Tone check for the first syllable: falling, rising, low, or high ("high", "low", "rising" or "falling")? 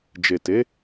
low